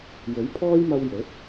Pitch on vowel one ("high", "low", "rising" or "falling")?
rising